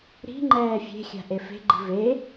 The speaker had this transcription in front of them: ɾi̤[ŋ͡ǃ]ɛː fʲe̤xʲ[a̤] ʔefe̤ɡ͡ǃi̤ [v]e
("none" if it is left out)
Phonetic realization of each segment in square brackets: ŋ͡ǃ, a̤, v

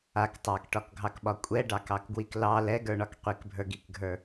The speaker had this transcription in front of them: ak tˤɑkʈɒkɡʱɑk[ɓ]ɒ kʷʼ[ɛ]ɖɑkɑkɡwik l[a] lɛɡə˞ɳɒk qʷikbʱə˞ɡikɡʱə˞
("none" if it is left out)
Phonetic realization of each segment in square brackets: ɓ, ɛ, ɑ

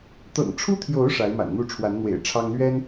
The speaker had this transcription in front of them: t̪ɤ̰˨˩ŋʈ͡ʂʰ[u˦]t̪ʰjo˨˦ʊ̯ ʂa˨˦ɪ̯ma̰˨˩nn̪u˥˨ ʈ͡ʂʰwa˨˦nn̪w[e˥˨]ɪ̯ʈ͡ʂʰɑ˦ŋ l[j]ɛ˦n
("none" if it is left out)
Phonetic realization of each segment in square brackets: u˦, ḛ˨˩, ɥ

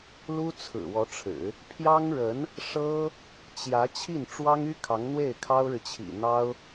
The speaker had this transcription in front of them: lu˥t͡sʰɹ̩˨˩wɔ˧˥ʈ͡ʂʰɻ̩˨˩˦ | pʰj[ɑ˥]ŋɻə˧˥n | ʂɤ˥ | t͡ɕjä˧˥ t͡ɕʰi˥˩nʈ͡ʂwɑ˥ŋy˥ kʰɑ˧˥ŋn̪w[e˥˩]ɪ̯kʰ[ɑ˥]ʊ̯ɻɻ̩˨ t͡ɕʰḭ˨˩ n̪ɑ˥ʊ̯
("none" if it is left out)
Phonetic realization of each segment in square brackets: ɑ˥, e˥˩, ɑ˥

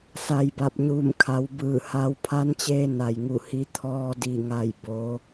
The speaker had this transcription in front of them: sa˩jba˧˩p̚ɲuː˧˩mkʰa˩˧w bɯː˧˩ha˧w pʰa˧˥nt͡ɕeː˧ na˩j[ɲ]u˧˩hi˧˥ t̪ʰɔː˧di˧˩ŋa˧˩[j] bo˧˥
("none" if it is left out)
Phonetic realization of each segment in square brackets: ŋ, j

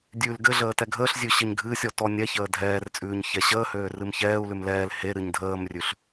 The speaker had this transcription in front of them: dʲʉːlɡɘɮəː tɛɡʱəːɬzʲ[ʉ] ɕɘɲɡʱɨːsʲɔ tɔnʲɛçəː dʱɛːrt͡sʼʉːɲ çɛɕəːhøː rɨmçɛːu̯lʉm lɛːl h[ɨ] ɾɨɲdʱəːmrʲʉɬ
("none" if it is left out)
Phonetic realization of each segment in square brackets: ʉ, e

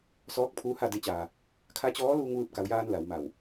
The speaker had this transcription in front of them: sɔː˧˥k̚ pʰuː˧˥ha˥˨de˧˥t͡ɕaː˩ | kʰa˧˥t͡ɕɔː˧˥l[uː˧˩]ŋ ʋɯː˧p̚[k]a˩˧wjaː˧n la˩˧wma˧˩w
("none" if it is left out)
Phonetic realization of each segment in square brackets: uː˧, k

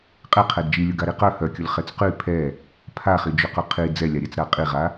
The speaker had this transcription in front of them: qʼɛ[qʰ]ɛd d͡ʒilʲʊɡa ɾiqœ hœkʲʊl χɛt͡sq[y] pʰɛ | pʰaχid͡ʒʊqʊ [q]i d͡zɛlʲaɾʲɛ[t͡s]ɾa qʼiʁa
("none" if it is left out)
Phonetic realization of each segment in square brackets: qʰ, y, qʰ, t͡s

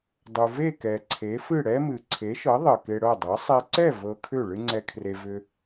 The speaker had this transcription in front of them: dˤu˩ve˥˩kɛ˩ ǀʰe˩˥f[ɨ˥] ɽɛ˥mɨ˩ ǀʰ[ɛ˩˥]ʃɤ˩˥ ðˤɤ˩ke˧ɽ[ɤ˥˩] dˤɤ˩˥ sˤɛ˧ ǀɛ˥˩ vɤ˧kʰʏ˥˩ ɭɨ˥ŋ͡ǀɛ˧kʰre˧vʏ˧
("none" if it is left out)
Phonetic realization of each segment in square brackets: ɨ˥˩, e˩˥, ɤ˥˩

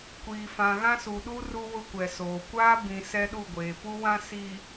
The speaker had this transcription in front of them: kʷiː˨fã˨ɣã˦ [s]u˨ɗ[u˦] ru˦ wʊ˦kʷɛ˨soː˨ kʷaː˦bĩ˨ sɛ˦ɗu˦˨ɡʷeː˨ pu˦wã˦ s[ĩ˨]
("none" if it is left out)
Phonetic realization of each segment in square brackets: s, u˦, i˨

